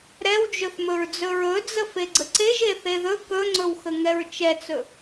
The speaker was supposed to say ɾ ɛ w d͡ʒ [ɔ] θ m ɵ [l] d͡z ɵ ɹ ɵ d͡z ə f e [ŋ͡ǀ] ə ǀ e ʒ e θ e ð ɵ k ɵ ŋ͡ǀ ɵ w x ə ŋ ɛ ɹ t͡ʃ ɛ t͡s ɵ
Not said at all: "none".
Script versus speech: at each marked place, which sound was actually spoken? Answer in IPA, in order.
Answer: ɵ, ɹ, ɡ͡ǀ

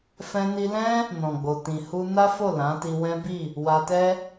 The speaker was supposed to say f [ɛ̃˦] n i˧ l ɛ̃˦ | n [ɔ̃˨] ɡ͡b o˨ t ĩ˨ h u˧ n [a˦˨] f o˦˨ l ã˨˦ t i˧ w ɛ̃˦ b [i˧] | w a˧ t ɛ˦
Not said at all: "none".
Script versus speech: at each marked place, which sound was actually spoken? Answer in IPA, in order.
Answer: ɛ̃˧, ɔ̃˨, a˦, i˦˨

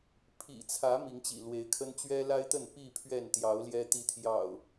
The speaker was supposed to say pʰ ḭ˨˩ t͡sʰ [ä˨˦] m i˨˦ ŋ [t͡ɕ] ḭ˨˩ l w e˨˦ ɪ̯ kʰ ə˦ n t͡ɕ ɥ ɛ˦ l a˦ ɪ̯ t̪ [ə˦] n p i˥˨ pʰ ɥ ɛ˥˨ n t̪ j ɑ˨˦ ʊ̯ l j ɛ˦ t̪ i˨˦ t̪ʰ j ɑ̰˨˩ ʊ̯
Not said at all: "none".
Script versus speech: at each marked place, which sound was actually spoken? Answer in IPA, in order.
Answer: ä˨˦, t͡ɕ, ə˥˨

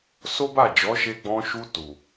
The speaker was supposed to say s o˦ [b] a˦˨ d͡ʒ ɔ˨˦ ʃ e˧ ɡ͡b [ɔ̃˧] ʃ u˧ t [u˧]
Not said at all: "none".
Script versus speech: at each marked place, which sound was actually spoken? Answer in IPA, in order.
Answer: b, ɔ̃˧, u˨

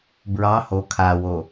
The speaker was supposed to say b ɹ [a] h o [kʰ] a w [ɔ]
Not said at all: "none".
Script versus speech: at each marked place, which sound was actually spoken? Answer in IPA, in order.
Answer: ɑ, kʰ, o

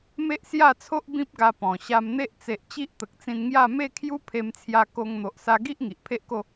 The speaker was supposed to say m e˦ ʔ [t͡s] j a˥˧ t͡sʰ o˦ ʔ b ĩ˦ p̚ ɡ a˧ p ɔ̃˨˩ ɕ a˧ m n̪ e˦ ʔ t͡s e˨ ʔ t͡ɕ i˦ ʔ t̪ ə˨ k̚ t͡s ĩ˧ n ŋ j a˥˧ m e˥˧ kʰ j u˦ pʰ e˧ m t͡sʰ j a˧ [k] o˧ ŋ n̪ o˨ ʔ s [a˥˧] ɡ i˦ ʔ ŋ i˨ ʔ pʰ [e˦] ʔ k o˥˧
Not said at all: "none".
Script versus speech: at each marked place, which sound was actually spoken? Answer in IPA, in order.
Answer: s, k, a˧, e˦

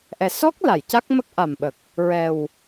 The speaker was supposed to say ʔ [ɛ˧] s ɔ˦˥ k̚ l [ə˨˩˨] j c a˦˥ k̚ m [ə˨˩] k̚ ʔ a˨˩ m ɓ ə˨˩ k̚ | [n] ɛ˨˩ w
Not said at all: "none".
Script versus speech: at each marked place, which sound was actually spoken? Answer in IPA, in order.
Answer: ɛ˨˩, a˨˩˨, ə˦˥, ɹ

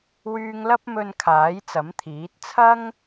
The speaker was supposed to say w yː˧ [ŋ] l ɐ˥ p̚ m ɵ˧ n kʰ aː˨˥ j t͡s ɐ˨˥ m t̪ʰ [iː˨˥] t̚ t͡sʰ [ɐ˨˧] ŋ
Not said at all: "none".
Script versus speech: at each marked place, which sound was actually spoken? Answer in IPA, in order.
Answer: ŋ, iː˨˥, ɐ˥

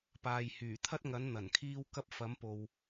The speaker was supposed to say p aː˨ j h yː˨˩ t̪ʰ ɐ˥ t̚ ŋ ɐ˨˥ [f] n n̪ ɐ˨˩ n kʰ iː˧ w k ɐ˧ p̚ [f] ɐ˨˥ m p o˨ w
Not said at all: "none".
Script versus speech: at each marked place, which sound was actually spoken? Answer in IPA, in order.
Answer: none, f

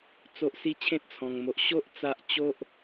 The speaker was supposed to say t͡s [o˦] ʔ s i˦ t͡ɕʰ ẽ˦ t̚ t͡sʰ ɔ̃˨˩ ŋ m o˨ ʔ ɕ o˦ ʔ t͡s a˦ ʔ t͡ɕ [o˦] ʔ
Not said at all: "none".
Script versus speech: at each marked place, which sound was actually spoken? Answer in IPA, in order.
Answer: o˦, o˦

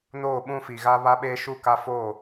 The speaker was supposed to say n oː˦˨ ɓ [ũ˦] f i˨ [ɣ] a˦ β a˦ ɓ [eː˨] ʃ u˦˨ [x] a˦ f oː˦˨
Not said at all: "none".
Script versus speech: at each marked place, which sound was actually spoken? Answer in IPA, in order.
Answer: ũ˦, ɣ, eː˦, k

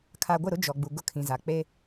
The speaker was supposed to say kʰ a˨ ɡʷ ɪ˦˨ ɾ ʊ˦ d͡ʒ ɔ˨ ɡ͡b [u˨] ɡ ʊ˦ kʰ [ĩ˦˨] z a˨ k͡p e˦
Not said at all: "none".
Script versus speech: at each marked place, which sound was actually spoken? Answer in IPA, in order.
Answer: u˨, ĩ˨

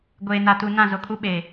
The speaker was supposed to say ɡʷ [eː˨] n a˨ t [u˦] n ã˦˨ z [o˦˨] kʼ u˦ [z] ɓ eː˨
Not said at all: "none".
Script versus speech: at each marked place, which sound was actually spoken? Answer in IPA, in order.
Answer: eː˨, u˨, o˨, none

